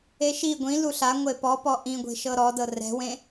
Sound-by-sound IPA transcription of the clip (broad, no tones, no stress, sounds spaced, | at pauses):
e ʃ i ɡʷ ĩ l u ɬ a ŋʷ e p ɔ p ɔ ʔ ĩ ɡʷ e̤ ʃ ɤ ɾ ɔ d ɤ r ɛ̤ w ẽ